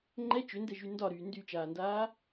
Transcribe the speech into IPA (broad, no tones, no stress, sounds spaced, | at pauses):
ŋ͡ǃ ɛ t͡ʃ ʏ n d ɛ ʒ y n d ɒ ɾ yː n d y t͡ʃ aː n d aː